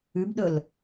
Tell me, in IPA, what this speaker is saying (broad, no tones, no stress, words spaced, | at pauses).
ʉbɗɵl